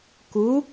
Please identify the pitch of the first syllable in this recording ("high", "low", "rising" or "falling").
rising